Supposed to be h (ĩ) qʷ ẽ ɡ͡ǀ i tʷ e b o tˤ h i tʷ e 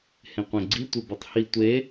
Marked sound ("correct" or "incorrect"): incorrect